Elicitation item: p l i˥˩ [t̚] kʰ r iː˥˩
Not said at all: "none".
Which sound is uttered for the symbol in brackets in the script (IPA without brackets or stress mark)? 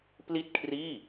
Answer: t̚